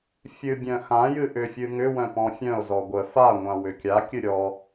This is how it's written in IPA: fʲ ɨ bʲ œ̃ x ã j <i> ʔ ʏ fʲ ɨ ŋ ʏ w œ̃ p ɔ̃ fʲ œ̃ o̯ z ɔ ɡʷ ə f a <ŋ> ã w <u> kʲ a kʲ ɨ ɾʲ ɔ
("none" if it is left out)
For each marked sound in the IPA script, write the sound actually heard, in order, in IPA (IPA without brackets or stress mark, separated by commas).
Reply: ɨ, ŋʷ, ʏ